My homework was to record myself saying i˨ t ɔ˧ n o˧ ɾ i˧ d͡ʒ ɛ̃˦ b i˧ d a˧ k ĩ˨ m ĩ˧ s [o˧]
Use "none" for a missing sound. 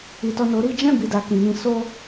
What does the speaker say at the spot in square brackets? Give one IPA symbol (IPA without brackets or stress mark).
o˦